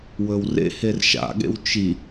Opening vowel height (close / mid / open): mid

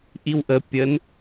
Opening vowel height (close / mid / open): close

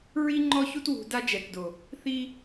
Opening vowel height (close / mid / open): close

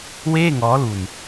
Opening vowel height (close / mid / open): mid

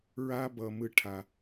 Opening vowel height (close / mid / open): open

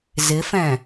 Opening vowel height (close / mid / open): close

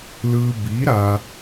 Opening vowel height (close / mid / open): close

